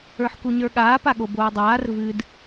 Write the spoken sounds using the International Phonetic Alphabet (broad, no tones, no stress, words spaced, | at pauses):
ə˞ħkuɲə˞ɠaː paɠoboːdˤaːr vɨd